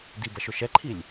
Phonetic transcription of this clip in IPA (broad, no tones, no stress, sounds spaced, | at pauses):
d i b ɐ ʃ ʊ ʃ ɛ ǃʰ i lʲ